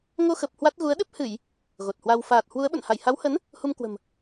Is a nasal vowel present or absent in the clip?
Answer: absent